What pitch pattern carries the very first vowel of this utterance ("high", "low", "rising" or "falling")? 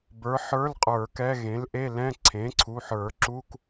rising